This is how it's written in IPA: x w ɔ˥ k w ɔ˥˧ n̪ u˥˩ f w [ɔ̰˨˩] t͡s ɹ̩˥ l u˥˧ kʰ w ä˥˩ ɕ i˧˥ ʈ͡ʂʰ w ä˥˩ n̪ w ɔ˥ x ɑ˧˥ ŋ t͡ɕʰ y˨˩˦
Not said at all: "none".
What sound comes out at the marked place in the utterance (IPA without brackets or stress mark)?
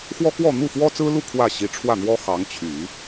ɔ˥